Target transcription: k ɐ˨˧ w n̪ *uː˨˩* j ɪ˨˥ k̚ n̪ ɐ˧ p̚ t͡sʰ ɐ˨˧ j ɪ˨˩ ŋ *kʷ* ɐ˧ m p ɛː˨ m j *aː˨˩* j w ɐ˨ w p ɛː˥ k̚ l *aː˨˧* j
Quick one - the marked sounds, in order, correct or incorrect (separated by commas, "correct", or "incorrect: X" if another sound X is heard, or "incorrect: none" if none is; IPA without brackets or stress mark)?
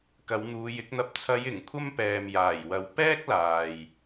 incorrect: uː˨˧, incorrect: kʷʰ, correct, incorrect: aː˨